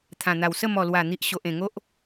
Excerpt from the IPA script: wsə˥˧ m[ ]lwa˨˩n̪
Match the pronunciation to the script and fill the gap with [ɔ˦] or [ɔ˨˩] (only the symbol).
ɔ˨˩